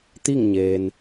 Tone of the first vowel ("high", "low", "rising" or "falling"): falling